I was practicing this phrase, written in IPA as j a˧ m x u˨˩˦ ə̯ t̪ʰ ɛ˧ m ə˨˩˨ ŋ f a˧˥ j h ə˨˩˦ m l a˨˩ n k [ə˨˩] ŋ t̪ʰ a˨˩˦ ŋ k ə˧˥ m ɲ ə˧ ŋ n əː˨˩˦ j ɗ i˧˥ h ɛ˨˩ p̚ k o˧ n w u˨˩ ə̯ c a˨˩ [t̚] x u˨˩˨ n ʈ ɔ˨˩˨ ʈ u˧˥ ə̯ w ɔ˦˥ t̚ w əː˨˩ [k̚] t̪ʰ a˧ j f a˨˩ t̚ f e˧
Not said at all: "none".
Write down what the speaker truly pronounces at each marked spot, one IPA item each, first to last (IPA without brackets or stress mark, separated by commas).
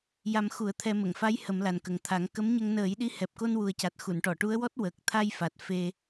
ə˨˩, t̚, k̚